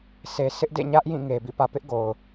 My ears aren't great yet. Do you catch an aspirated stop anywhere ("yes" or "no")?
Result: no